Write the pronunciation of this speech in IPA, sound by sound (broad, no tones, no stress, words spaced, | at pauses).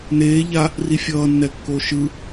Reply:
neː ʎa | rifʲʌː nːɛkːoʃɯ